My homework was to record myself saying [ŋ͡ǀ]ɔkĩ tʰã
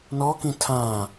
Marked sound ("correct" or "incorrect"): incorrect